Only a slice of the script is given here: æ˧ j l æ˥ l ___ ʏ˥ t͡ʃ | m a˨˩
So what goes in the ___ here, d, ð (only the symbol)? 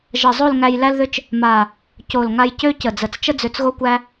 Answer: ð